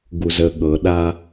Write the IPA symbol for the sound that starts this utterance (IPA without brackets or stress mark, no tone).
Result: ɡ